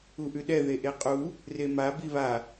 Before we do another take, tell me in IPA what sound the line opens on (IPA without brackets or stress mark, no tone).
u